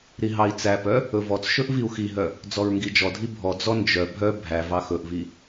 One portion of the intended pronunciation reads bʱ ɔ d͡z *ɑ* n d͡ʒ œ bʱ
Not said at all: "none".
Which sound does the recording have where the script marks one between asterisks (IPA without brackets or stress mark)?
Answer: ɔ